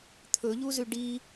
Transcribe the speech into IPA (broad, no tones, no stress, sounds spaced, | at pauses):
t̪ʰ ɵ ʎ u z ʉ ɖ i